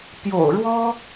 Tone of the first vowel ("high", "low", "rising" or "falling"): low